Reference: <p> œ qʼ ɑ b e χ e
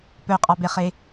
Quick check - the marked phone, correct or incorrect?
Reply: correct